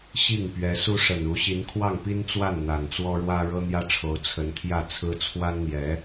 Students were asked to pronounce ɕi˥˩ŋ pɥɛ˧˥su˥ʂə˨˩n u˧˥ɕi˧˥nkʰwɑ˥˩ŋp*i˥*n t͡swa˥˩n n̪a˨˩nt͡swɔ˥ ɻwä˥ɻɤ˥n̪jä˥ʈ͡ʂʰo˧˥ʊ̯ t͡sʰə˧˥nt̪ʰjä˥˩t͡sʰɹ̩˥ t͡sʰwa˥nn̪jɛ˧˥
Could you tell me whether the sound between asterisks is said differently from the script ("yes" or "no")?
no